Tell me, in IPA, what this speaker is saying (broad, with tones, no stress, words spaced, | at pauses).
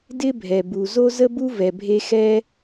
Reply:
dɪ˥bʱɛ˩bu˩ zo˥zə˥bu˥ vɛ˩bʱe˥ xɛ˥